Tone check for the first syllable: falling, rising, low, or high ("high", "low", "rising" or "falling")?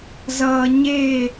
low